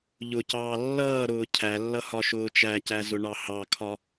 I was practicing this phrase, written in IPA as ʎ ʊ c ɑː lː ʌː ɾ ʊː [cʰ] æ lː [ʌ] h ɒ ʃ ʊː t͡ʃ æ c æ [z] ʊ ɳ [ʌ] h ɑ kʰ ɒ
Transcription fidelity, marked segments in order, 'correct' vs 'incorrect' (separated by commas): correct, correct, correct, incorrect